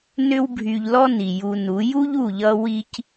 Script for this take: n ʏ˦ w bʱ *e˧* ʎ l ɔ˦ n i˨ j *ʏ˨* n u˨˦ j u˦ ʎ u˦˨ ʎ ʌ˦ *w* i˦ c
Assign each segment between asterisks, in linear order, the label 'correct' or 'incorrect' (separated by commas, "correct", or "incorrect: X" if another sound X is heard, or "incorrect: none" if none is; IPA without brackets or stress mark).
incorrect: y˧, incorrect: u˨, correct